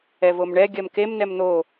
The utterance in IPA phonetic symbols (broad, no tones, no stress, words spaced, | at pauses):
ɛvomɳɛ ɡʲɜmkem nɛmn̪o